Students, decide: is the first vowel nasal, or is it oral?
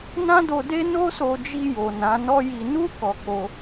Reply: nasal